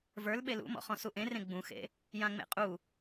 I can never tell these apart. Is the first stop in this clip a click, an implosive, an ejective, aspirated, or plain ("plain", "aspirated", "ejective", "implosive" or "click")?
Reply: implosive